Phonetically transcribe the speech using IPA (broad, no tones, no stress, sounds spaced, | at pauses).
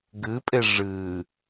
ɡ ɨ pʼ e ʐ ɨ